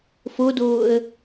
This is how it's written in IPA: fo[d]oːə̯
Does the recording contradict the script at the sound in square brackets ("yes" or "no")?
no